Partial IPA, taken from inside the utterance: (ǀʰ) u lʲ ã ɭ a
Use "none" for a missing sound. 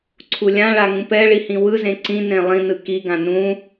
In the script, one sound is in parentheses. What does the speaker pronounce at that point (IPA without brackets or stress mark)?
ǀʰ